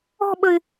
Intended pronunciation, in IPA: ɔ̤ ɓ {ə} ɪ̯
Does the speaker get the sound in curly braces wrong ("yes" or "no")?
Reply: no